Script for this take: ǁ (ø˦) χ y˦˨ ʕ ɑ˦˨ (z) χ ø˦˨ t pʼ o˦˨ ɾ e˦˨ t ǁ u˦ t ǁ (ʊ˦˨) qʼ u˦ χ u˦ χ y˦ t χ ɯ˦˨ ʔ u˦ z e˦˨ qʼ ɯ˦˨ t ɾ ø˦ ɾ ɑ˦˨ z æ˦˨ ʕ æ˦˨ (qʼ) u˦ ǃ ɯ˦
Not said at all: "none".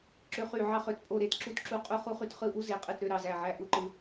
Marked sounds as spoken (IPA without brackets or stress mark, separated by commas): ø˦, none, u˦˨, ʔ